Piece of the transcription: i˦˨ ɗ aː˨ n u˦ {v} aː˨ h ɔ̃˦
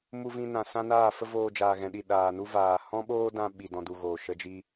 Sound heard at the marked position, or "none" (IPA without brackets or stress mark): v